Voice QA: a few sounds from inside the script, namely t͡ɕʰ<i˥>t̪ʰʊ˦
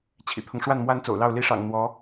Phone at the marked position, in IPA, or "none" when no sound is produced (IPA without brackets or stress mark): ḭ˨˩